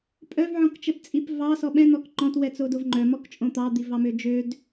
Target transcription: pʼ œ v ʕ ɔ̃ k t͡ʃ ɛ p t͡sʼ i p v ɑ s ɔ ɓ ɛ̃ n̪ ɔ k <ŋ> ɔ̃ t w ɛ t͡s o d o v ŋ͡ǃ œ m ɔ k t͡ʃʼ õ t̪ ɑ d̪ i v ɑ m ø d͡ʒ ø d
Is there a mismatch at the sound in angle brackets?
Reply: yes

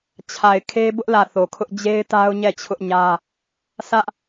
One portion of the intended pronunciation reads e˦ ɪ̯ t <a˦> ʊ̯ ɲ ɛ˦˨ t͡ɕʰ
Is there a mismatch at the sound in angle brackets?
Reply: no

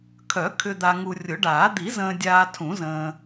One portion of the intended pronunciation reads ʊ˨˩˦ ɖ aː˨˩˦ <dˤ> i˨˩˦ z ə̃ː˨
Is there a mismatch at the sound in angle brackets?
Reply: yes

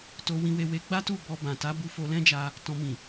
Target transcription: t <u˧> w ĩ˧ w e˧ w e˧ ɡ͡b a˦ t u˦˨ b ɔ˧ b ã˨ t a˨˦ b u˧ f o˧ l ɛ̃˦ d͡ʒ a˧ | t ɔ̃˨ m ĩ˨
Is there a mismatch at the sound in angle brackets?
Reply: yes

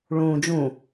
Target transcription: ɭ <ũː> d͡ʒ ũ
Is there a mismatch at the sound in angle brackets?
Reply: no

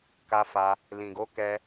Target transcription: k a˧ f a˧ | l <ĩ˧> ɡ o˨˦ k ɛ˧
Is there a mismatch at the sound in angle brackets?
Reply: yes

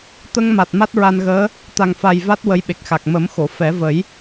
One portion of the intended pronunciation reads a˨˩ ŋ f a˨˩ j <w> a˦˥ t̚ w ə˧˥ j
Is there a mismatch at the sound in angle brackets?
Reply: yes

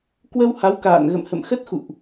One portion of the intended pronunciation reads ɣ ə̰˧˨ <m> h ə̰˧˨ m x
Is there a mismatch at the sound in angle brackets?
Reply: no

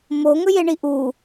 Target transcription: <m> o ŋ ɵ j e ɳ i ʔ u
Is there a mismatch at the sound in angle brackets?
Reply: no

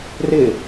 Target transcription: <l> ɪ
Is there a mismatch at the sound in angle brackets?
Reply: yes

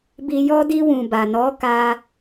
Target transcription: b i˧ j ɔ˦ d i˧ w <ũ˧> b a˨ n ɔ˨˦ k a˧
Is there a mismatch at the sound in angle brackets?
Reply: yes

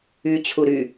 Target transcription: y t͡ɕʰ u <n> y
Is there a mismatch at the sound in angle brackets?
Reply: yes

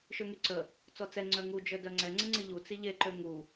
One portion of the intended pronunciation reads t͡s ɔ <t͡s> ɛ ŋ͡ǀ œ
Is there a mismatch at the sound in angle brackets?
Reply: no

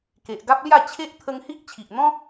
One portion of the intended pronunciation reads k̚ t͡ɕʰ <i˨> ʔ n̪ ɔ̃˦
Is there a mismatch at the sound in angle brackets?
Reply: no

